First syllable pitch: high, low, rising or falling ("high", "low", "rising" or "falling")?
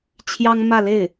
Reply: high